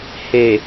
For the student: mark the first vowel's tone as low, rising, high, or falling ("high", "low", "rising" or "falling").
low